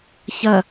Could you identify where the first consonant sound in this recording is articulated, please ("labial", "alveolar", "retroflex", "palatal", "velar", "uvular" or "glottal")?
palatal